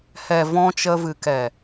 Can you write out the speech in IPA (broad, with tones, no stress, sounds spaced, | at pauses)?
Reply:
h ɛ˨ v ɔ̃˧ t͡ʃ ə˧ v ɨ˨ k ɛ˨